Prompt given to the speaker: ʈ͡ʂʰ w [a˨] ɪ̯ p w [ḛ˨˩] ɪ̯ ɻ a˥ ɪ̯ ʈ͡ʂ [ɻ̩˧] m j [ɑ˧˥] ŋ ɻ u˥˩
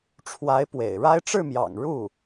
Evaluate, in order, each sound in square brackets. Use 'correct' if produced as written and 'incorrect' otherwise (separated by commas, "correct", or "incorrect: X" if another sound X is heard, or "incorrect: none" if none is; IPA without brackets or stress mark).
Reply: incorrect: a˧˥, correct, incorrect: ɻ̩˥˩, incorrect: ɑ̰˨˩